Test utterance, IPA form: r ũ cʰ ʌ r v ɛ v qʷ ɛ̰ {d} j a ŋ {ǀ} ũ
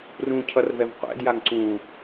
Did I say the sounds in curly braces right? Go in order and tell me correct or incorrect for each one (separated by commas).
correct, correct